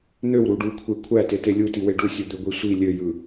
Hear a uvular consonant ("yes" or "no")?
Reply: no